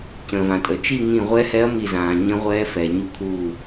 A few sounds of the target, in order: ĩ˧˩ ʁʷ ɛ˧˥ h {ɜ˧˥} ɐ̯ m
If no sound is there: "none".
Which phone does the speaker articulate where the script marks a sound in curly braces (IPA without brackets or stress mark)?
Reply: ɛ˧˥